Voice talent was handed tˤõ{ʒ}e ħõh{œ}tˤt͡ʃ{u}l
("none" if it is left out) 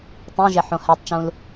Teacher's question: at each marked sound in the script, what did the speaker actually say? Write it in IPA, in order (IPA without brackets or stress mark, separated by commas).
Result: ʒ, ɛ, ũ